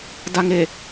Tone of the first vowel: low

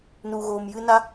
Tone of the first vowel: low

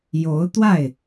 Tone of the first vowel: rising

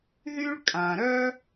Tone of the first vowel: high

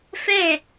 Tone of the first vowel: falling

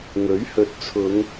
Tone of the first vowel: rising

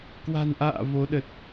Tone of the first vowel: low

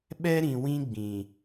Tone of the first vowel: high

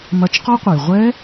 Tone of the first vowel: rising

